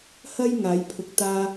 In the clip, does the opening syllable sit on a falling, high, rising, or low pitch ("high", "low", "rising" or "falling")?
high